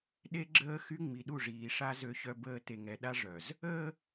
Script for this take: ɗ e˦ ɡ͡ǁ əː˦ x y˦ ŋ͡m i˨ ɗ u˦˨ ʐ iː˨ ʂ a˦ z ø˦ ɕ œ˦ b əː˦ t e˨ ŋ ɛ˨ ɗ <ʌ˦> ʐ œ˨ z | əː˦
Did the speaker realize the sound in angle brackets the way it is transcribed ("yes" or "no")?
no